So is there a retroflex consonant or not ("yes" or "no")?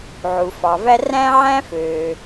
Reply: no